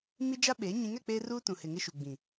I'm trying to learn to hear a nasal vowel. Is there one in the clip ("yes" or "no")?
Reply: yes